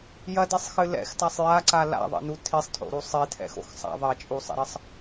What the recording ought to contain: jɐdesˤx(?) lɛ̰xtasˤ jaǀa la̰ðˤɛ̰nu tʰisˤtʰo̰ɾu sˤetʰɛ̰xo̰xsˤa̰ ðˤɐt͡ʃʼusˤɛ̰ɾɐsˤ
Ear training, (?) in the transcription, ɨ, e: ɨ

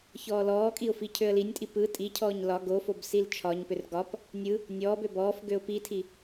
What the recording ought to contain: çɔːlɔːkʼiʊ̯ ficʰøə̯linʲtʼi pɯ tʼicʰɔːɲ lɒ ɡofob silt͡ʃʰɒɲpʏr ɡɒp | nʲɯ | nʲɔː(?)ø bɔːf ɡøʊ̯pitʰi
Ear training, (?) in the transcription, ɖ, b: b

